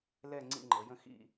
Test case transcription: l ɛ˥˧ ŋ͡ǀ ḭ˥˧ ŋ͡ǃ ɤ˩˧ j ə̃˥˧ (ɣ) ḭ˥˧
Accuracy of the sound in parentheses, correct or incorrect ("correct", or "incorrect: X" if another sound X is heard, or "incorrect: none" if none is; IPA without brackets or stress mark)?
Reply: incorrect: x